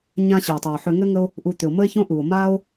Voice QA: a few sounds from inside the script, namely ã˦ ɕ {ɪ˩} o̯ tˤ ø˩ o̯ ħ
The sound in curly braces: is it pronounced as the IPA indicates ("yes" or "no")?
yes